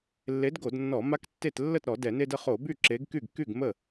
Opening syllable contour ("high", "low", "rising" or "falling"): rising